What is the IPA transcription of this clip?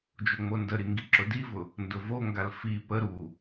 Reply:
d͡ʒ o ŋ͡m o n d ə ɾ i ŋ ɡ i ǁ ʊ d i v ʊ | n d ʊ v o ŋ ɡ a l f i p ə ɾ u

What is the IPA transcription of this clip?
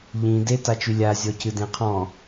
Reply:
ʎ ĩ d e t a t͡ʃ y lʲ a zʲ ɔ c ɨ d ẽ qʰ ɔ̃

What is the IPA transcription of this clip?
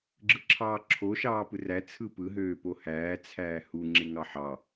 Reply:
ɡ͡ǁ ɯ ǁʰ ɑː ǁʰ o ʃ ɑː p ɯ r æ t͡sʰ ɯ p ɯ ɦ øː p o h æː t͡sʰ æː h u ŋ͡ǁ e ŋ ɑ ħ ɑ

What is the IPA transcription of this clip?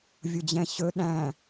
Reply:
vʲ ʊ d͡ʑ ɛ̃ ɕ ɵ ɗ æ̃

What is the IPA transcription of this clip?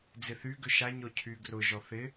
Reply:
d͡z ɪ θ y ɡ ʏ ʃ a ɲ ɔ cʰ y ɡ r ʊ ʒ ɔ θ ɪ

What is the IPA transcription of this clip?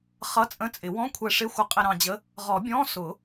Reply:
χ ʌ˧˥˧ t͡sʼ ə̃˧˥˧ t͡sʼ ɪ˨˩˦ w ɔ̃˧˥˧ kʷʰ ɛ˧ ʂ ɪ˧˥˧ xʷ ə˧ qʼ ɪ˧ ɾ ɑ̃˧ d͡ʑ ə˧˥˧ | ʁ ɔ˨˩˦ bʲ ɔ̃˧˥˧ s ʊ˨˩˦

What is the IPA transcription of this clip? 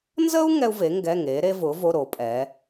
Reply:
n z ə˥ u̯ ŋ ɛ˥ u̯ v e˨˥ ŋ ɡ ɛ˧˥˧ ŋ e˨˥ ɾ e˥ v ʊ˨˥ v o˧˥˧ ɾ o˨˥ pʼ ɛ˨˥

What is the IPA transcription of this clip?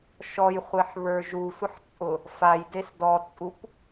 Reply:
ʃ ɔ j χʷ e ħ β ə˞ ʒ u sʷ ə ħ t͡sʼ ʊ | f a j d e s d ɔ t͡sʼ u p

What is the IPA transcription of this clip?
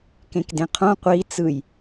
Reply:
k ẽ k d ẽ qʰ õ qʷ i t͡s ɯ j

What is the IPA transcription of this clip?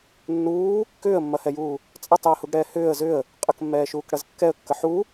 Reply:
nː uː | k ʏː ə̯ mː ɐ h ɛ j uː | t͡sʼ ɐ tˤ j ə h u ɡ ɽ ɛː h ʏː ə̯ z ʏ ə̯ | qʼ ə k mː ɛː ʃ uː k ɽ ɐ z kː ɛ ə̯ kː ə ħ u

